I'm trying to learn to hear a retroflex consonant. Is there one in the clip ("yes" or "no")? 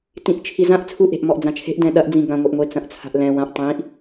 no